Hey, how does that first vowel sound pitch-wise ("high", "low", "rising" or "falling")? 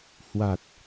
low